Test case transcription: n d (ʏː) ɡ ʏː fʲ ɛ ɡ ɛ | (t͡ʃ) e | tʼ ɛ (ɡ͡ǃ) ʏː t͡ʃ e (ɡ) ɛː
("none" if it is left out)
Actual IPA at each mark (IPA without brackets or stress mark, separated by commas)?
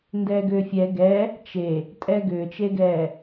ɛː, t͡ʃ, ɡ, ɡ